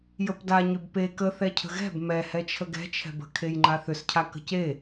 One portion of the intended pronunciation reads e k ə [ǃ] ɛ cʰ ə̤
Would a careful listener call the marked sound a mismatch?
yes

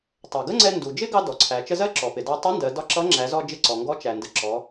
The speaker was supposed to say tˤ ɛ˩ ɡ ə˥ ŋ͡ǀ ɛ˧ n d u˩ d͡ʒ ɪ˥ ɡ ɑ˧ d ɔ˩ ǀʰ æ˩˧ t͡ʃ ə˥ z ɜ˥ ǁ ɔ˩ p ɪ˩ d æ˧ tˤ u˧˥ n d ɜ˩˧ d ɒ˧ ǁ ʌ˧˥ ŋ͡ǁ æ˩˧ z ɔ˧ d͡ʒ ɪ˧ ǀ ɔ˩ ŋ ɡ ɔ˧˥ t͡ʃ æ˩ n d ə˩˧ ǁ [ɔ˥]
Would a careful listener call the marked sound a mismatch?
yes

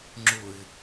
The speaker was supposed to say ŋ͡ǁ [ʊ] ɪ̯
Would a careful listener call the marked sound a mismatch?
no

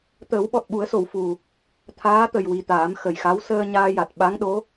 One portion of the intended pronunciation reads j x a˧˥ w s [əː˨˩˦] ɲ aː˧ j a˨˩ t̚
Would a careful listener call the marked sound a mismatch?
yes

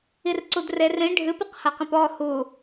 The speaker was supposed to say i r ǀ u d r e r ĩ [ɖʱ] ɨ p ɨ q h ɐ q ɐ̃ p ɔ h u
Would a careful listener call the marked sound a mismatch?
no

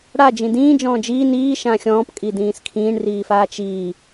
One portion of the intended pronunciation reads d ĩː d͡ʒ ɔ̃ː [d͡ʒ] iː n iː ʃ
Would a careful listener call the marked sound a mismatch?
no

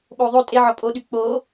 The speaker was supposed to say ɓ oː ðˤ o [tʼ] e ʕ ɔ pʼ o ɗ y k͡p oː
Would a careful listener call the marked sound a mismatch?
no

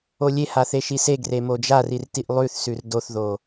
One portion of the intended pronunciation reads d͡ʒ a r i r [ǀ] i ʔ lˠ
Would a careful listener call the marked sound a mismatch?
yes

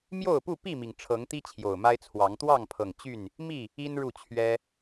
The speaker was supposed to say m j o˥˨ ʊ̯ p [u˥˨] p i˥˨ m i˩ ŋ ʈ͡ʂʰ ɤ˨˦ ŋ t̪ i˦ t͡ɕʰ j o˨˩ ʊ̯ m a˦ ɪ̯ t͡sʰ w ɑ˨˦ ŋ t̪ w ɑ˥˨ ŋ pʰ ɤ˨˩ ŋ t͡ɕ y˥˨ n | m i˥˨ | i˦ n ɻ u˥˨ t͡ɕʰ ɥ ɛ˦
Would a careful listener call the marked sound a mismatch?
no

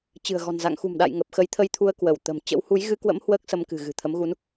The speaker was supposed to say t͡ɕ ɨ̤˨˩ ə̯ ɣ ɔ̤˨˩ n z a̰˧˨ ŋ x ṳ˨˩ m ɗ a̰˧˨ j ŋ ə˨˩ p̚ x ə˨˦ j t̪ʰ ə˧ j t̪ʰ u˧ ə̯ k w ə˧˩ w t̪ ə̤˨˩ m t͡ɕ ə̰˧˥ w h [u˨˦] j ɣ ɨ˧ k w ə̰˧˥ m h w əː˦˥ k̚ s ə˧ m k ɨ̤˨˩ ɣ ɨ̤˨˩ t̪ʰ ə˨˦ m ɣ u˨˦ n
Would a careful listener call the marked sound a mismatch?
no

